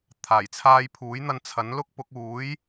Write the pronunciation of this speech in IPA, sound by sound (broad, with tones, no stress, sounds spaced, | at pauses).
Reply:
t̪ʰ aː˨˩ j t͡sʰ aː˧ j pʰ uː˨˥ j n̪ ɐ˧ n t͡sʰ ɐ˨˥ n l ʊ˥ k̚ p ʊ˨˥ k̚ uː˨˥ j